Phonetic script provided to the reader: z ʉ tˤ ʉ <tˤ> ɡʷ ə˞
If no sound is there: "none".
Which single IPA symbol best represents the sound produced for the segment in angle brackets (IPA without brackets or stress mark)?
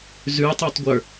tˤ